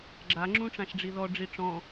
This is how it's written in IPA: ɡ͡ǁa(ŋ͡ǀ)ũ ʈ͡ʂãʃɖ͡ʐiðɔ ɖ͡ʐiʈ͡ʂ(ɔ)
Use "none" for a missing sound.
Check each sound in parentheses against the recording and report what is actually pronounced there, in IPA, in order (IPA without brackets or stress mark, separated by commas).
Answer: ŋ͡ǁ, ɔ̃